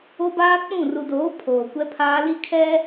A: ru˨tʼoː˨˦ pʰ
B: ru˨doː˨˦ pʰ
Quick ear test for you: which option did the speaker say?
B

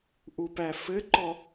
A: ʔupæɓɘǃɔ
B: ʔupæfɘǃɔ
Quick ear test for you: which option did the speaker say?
B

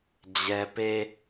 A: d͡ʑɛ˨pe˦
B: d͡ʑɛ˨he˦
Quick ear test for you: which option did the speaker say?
A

